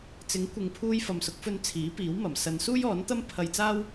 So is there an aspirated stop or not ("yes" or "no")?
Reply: yes